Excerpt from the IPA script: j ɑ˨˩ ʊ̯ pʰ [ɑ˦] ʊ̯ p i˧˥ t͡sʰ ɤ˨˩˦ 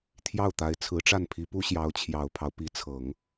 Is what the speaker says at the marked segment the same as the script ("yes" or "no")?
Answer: yes